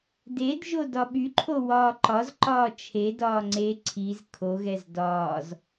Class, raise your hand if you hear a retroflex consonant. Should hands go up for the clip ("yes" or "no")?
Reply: no